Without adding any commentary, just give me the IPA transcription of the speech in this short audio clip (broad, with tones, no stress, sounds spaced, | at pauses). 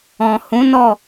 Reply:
ɔ̃˨ h ũ˨˦ n ɔ˦˨